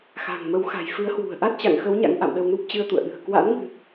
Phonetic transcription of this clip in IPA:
xa̤˨˩ŋmə˨˦wxa̤˨˩j fɨ˨˦ə̯hwṳ˨˩ə̯ ʔa˦˥t̚t͡ɕa̰˧˨ŋxə˨˦w ɲa̰˧˥ŋʔa̰˧˨mɗə˧w nu˦˥p̚t͡ɕɨ˧ə̯t̪ṵ˧˨ə̯ʔɨ̤˨˩ə̯ kwa̰˧˥nŋɨ̤˨˩

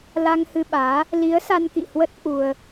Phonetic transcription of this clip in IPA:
la˧ŋhɨ˧ɓaː˨˦ | li˨˦ə̯sa˧nkḭ˧˨hwə˦˥t̚ ʔu˧ə̯

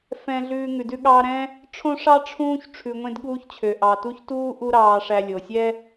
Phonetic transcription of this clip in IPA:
fɛ̃˨ɮʉː˨ ŋʉ˩dʉ˦ɠɑː˦ ɾɛ̃˥ | ʈ͡ʂʰõ˥ ʂɑ˥ʈ͡ʂʰũː˦ç ʈ͡ʂʰʉ˨ŋʷẽ˦dɠuː˦çt͡ɕʰø˩ ʔɑ˩tu˦çtuː˥ ʔu˦ɾɑː˨ʂæ˨ lʲo˩ sʲɛ˥

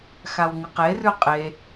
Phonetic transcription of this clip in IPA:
xawŋɯqerʉ qʼe

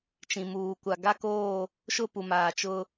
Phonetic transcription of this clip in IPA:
t͡ʃĩ˨muː˨ kʷa˨ɡa˦koː˦˨ | ʃʊ˦pu˨maː˨ t͡ʃʊ˦

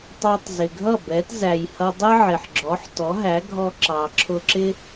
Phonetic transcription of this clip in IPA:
tˤɑ˧tˤzɪ˩ɡʱʌ˥˩ bɛ˩˥tzæ˩jhʌ˧ dˤɛ˥ʕɪ˩ħɡ͡ǁɔ˩˥ħ tɔ˩˥ɦæ˩˥ɡʱɔ˧ ǁɑ˩ǁʰʊ˧ǁɪ˥

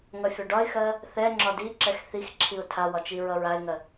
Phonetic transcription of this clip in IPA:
ŋʌfʲɒɖɒɪ̯xɜ | θɛ ŋ͡ǁɒdiǁɛx θixǁʰiʊ̯ tʰawɒ t͡ʃiɹʌɹaɪ̯ŋɜ

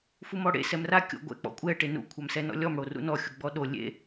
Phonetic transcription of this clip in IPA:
fumɔɽḛ sɛmra kʲo̰ ɡʷɛ̰ k͡pɔ̰kʷʼɛ ʈenṵ kʷʰamsɛnɔ̰lʲɔm ɽorṵnɔ xʲuɡ͡bɔɗo lʲḛ

